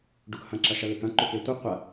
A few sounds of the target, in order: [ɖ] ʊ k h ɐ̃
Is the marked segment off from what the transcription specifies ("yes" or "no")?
no